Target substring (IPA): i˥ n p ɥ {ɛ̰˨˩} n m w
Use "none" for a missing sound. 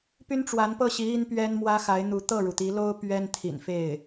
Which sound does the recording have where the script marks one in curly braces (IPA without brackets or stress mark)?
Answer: ɛ˥